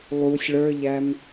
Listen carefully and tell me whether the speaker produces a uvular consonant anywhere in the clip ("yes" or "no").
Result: no